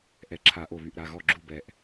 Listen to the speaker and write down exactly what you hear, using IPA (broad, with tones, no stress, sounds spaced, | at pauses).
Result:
ʔ ɛ˧˩˧ ǁʰ a˧˩˧ ʔ o˧˩ β y˧˩ ʔ ɾ a˩˧˩ ɣ ɔ˥˩ ɡ͡ǁ u˥˩ b ɛ˧˩ ʔ